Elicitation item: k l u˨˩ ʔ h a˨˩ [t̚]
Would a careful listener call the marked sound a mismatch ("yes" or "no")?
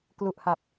yes